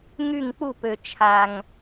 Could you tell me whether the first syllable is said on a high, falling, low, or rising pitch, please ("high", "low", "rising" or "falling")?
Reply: falling